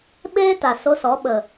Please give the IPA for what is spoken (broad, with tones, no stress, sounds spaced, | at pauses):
ɓ eː˦ t a˨ s o˧ s ɔ˨˦ ɓ ə˨